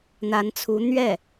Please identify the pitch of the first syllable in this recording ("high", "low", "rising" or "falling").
rising